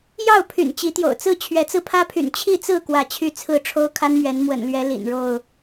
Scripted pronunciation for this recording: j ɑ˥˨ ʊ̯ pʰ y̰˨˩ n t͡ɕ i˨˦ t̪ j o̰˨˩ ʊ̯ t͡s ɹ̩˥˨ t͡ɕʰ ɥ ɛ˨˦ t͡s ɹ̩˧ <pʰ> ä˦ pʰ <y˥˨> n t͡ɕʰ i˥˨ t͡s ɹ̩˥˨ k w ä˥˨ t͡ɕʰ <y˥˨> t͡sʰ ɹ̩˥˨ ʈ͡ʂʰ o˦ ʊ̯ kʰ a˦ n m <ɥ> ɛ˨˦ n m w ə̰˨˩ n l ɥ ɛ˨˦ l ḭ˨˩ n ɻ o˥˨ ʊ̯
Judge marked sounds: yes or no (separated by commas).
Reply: yes, no, yes, yes